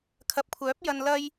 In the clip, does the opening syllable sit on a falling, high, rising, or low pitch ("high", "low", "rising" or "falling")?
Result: low